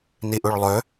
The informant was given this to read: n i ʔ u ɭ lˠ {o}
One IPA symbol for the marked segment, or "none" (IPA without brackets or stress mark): ɵ